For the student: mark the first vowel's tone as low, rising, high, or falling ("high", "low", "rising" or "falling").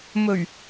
low